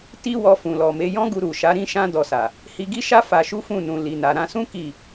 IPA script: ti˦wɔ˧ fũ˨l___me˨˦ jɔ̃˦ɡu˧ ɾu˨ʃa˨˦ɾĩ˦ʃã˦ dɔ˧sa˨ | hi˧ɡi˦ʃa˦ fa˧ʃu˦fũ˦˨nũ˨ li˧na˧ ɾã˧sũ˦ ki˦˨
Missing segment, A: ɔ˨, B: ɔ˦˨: A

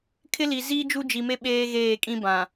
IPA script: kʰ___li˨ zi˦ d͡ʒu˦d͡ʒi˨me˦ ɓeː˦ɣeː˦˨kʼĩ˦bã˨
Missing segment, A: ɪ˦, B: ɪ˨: A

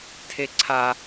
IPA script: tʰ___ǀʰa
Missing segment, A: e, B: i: A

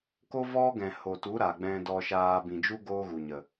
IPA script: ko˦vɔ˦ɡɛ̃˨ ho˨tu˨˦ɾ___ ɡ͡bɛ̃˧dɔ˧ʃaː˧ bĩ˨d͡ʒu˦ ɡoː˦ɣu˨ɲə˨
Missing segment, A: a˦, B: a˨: B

